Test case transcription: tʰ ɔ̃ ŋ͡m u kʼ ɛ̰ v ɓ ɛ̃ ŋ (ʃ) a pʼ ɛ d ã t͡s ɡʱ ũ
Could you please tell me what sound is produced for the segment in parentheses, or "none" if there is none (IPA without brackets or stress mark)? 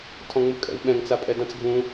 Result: t͡s